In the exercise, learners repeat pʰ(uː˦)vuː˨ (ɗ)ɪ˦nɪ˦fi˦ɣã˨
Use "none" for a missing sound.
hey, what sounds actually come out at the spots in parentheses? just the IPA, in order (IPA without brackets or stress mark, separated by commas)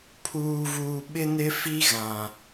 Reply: uː˨, ɓ